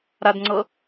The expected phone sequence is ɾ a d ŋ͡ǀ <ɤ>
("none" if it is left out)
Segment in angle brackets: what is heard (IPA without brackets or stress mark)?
ɤ